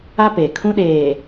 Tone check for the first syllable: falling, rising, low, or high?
high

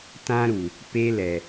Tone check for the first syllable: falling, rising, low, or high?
high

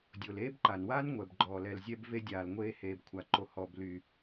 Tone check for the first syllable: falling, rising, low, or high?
low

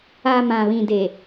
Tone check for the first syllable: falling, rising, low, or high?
low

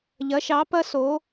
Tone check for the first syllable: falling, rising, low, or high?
rising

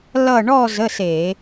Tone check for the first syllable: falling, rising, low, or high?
falling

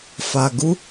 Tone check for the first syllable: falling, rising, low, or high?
low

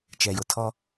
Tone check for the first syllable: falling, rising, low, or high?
low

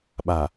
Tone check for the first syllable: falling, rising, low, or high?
low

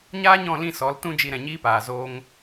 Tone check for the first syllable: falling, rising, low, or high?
high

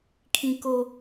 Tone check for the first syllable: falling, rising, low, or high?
low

